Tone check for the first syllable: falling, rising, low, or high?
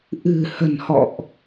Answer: low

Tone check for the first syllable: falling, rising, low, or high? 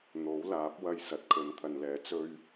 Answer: rising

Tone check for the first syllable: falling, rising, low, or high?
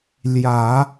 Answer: low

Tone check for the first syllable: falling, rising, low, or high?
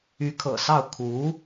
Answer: rising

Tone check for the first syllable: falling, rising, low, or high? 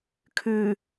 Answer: low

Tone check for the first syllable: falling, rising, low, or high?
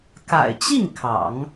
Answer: low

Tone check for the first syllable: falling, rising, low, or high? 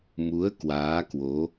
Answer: rising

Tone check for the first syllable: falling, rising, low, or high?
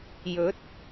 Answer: rising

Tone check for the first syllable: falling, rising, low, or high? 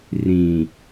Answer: low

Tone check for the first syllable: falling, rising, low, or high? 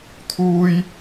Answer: high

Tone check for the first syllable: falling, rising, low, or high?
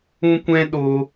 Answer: high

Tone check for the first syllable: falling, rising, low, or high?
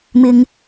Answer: low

